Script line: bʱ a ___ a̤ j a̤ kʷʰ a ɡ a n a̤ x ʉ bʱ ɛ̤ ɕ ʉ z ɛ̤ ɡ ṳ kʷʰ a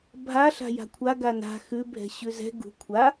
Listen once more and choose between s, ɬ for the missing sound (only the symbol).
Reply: ɬ